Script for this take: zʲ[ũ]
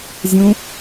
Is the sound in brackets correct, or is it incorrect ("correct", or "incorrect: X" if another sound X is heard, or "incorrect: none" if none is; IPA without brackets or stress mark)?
correct